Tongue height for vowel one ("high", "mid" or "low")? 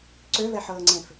mid